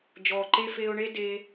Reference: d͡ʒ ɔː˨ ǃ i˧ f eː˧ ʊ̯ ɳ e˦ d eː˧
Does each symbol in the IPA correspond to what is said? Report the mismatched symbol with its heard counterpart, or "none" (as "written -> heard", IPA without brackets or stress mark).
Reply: i˧ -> e˧